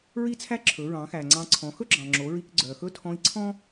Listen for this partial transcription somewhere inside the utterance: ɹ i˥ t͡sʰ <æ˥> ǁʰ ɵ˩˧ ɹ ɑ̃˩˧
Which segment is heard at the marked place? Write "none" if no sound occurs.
æ˥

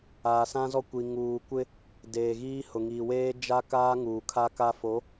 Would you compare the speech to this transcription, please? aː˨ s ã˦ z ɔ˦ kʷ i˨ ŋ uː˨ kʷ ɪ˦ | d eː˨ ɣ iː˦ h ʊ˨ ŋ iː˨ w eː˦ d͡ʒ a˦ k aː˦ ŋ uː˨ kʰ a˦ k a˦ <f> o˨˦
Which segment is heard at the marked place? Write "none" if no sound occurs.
f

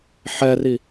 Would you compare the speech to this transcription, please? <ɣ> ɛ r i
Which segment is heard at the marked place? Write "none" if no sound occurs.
ħ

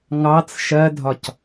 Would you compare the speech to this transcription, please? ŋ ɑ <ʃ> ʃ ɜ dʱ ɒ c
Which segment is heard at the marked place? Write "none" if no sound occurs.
t͡s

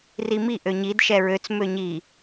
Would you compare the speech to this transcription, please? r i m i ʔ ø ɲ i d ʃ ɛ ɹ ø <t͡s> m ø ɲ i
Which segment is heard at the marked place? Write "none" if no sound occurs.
t͡s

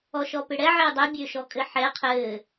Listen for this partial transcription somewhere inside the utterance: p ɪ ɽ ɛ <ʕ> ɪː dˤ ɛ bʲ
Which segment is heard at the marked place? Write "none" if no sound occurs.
ʕ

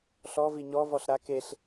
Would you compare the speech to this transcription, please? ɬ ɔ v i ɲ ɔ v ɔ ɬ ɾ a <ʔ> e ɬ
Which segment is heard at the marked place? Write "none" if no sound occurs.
k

